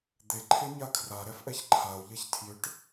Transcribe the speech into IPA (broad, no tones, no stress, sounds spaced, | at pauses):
d̪ e ǃʰ e ɲ a kʰ r a ɾ ɛ f ʔ ɛ ç ǃʰ a o̯ ʎ ɛ ç tʰ j ʏ ʈ